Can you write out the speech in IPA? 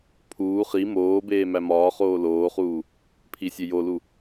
pʰ uː χ i m oː b eː m æ m ɒː χ oː l oː χ uː | pʰ i sʲ e j o l u

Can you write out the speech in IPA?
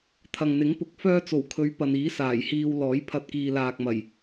t̪ʰ ɐ˨ ŋ n̪ ɪ˨˥ ŋ p ʊ˨ k̚ f œː˥ t͡s o˨˩ w kʰ ɵ˨˧ ɥ p ɐ˨ n iː˨˥ s aː˨˩ j h iː˧ w l ɔː˨˥ j pʰ ɐ˧ t̚ k iː˨ l aː˨ k̚ m ɐ˨˩ j

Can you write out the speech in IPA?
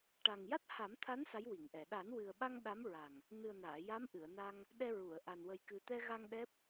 ʈ a˨˩ ŋ j a˦˥ t̚ h a˨˩˦ m t̪ʰ a˧˥ n s a˧˥ j w i˨˩˨ ŋ ʔ ɛ˨˩˨ ɗ a˨˩˦ n w ɨ˨˩ ə̯ ɓ a˧ ŋ ɗ a˧˥ m ɹ a˨˩ ŋ | n ɨ˨˩ ə̯ n aː˨˩˨ j a˧˥ m ʔ ɨ˨˩˨ ə̯ n a˧ ŋ | ɗ ɛ˧ ɹ u˨˩˨ ə̯ ʔ a˨˩ n w ə˨˩ j k ɨ˨˩ t̪ ɛ˧ ɣ a˧ ŋ ɗ ɛ˦˥ p̚

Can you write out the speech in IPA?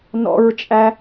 n ɔ̰ ɹ t͡ʃʼ æ

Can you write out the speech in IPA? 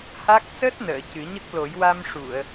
h a˦˥ k̚ s əː˦˥ t̚ n əː˨˩˨ c ɨ˨˩˦ ɲ ə˦˥ k̚ l o˨˩˦ j w a˧ m ʂ u˨˩˨ ə̯

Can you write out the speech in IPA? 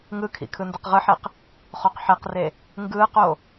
ŋ ɯ kʰ ḭ kʰ ɯ n d ɯ q ʁ ɯ ħ e q | χ o q ħ ɛ q r e | ŋ ɡ ɯː q o

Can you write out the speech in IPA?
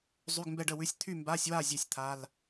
zˤ y˧˥˧ ɡ m b ɛ˥˨ ɖ ə˥˨ w ʉ˧˥˧ sʲ t̪ʰ y˥˨ m b a˧˥˧ sʲ w a˥˨ zʲ e˥˨ sʲ t̪ʰ a˧˥˧ l

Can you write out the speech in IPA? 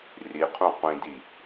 r i qʰ ũ qʷ ĩ d i

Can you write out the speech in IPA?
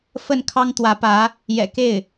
f ə˥˩ n kʰ ɑ˥ ŋ t̪ w ä˧˥ p ä˧˥ | j ɛ̰˨˩ k e˥˩ ɪ̯

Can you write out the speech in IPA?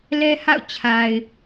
l ɛ˦ h a̰˦˨ ʊ̯ t͡ɕʰ a˨ ɪ̯

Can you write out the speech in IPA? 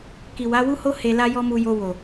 k i˨ w a˨˦ w u˦ h o˦ h e˧ l a˦ j ɔ˦ m u˧ j o˧ w o˨

